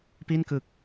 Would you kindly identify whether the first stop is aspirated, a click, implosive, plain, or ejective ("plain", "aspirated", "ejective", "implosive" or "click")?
plain